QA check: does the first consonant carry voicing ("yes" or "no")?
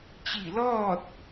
no